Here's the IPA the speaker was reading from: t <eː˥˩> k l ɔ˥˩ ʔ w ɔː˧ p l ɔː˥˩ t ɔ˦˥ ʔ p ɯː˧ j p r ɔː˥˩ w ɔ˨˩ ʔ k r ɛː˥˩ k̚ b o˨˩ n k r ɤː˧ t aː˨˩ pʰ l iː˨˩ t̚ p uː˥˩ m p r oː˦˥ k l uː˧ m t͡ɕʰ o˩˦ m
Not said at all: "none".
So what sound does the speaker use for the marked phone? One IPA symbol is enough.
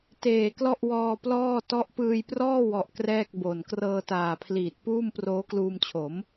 eː˨˩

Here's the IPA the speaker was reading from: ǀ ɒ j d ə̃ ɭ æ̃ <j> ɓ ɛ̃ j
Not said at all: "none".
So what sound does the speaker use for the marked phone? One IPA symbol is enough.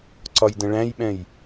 j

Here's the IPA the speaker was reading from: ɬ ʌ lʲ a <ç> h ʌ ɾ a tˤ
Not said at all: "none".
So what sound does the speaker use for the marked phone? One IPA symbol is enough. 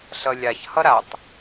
ç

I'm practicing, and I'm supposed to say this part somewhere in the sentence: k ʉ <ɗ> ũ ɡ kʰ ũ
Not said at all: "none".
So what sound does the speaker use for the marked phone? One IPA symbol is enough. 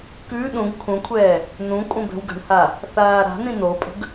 ɗ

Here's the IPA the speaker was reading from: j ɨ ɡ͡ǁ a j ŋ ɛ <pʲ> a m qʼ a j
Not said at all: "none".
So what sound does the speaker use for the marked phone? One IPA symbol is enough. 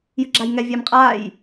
vʲ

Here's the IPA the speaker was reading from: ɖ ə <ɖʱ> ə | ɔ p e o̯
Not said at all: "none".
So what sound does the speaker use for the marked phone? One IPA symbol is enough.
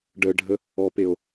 ɖʱ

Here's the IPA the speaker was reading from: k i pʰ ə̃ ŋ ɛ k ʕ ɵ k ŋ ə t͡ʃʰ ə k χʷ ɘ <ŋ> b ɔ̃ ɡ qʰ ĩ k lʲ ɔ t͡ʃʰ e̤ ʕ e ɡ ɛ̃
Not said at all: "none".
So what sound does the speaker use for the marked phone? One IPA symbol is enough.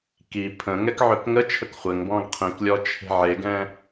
ŋ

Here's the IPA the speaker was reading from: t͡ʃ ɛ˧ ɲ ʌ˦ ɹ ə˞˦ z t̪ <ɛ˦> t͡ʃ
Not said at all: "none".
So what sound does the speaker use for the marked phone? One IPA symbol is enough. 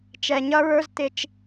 ɪ˦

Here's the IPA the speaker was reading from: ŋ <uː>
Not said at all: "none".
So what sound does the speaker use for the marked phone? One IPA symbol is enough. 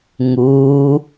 uː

